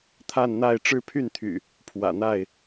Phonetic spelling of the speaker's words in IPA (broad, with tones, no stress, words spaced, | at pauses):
t̪ʰa˥˨nn̪a˥˨ɪ̯ ʈ͡ʂɻ̩˦pʰy˥˨nt̪ʰy̰˨˩ | pʰwä̰˨˩n̪a˥˨ɪ̯